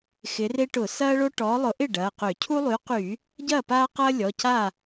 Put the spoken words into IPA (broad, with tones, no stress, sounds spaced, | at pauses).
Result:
x ɪ˨˦ r e˦ ʈ ʊ˧˩˧ s ɐː˦ ɭ o˦ ʈ ɔː˨˦ lˠ ʊ˨˦ ʔ ɪ˥˩ ɖ ɐː˩˧˩ q ø˧˩˧ cʰ u˦ lˠ y˨˦ q yː˧˩˧ | ɟ ɐː˥˩ p aː˦ q ɐː˦ lʲ ɔ˩˧˩ c aː˥˩